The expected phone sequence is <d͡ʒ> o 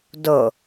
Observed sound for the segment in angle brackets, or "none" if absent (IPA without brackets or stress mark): d